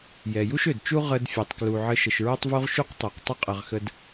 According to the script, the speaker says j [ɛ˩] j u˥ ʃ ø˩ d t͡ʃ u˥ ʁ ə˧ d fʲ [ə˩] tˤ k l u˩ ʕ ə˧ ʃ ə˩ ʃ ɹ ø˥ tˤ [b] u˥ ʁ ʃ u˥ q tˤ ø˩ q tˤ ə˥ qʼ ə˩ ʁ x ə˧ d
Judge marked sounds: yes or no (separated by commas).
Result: yes, no, no